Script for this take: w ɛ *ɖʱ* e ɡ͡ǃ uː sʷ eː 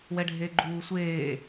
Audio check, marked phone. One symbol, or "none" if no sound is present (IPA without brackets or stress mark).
ɖʱ